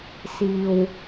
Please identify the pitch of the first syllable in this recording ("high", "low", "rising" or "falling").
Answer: low